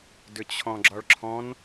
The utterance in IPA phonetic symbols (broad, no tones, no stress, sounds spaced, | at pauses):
d ʏ t͡ɕʰ ɔ̃ ɡ͡ǁ ɒ ɭ ǁʰ ɔ̃ n